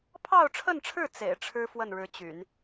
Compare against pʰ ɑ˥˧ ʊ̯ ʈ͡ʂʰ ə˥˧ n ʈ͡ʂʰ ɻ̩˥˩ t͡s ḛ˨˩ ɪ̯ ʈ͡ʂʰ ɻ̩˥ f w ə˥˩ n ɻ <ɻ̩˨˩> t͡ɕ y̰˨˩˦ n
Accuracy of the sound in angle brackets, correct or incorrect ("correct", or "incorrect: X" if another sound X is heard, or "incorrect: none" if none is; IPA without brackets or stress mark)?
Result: incorrect: ɻ̩˧˥